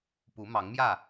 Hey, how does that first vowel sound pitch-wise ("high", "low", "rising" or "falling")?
rising